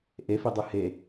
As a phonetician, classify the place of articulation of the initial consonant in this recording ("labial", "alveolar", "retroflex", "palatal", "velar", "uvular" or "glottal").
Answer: glottal